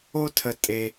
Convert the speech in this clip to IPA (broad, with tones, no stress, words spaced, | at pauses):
o˥tʰə˧ tʼe˧